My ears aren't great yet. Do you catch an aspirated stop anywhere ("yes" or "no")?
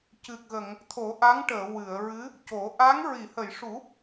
yes